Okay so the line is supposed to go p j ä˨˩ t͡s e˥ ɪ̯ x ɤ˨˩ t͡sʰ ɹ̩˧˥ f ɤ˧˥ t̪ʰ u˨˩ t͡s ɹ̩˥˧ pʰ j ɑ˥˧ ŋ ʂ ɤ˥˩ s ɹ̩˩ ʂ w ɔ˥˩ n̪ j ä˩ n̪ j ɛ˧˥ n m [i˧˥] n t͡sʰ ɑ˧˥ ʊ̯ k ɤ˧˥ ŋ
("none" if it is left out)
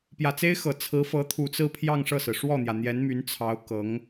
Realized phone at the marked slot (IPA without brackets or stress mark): y˧˥